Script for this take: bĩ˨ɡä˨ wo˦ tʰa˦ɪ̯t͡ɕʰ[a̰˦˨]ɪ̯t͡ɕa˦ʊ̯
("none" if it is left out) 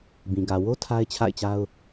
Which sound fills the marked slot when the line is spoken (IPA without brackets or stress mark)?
a̰˦˨